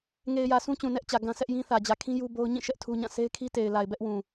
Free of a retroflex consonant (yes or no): yes